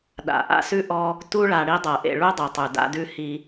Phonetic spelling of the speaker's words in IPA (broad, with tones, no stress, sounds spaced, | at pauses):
ɗ a̰˩ ʔ a̰˦ s ʉ˥ ʔ ɔ˦ | t u˥ ɭ a˨ ɽ i˦ dˤ ɤ˩ ʔ ḛ˨ ɭ u˥ dˤ i˩ tˤ ʉ˩ d a̰˦ d ʉ˦ h i˦